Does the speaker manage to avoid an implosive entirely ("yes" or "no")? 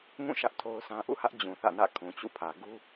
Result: yes